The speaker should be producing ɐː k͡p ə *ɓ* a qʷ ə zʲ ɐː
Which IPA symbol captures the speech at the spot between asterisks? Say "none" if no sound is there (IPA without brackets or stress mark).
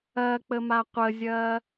m